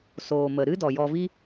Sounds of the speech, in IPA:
soː˨mə˨ɾɨ˦ dɔ˨jɔ˧vi˦

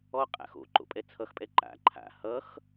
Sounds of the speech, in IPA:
ɔqʼa̰x o̰ ǃo̰pʼɛt͡sʰʌxpʼɛ ǃa̰ ǃʰa̰ hʌx

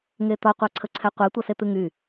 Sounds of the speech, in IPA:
ŋet̪ɒ qʷaǀʰəǀʰɛqʷe tʷʌset̪ɨŋy

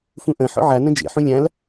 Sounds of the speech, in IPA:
fũʔɐ̃ ħɔ̰ʕa nɐ̃d͡ʒḛħũ lʲãl

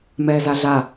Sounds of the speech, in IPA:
mɛːzaɮa

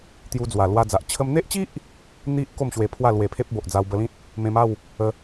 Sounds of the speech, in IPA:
t̪ju˧d͡zwa˨˩lwa˧d͡za˨ʔ t͡ɕʰə˧mn̪e˦ʔt͡ɕi˦ʔ | n̪i˦ʔ ko˥˧mɕwe˧ pʰwa˥˧lwe˧pʰe˦p̚ bo˨ʔd͡za˧wbə˧lĩ˦t̚ | mẽ˧ma˥˧w | ə˧

